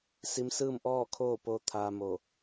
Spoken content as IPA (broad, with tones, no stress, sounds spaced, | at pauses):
s i˧˥ m s ɯː˥˨ m ʔ ɔː˥˨ kʰ oː˥˨ p oː˧ t̪ʰ aː˧ m o˧˩